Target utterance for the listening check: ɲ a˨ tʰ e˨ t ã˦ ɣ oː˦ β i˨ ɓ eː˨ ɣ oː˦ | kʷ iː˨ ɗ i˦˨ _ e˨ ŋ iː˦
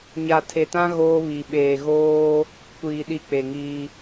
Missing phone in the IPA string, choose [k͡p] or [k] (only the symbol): k͡p